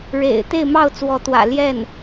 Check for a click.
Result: absent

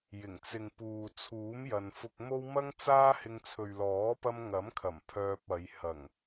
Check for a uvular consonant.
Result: absent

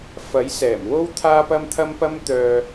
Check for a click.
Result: absent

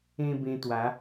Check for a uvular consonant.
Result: absent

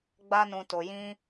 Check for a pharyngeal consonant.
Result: absent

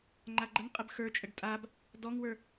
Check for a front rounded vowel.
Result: absent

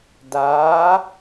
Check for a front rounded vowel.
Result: absent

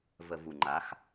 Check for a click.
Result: present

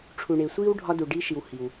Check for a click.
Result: absent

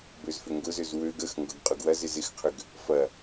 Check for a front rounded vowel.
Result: present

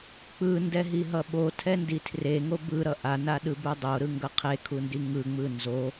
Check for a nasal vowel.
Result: absent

